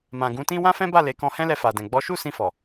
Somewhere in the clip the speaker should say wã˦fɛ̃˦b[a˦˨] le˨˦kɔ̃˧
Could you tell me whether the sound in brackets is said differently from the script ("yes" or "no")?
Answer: no